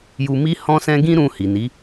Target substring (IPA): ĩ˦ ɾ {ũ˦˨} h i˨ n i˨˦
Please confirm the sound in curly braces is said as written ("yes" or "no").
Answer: no